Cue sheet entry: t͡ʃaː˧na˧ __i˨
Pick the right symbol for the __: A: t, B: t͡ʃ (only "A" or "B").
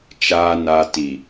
A